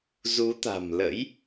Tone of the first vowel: rising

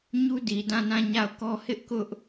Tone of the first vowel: high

